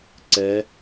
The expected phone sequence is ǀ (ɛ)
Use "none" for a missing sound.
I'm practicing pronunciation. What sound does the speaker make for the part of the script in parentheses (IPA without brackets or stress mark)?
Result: ɛ